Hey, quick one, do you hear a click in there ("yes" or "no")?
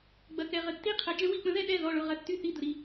no